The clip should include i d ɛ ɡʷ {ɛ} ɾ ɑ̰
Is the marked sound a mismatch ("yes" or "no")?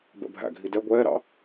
yes